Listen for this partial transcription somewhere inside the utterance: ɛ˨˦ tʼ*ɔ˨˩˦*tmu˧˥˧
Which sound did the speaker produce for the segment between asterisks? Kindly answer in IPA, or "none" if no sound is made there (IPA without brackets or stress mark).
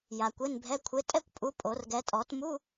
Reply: ɔ˨˩˦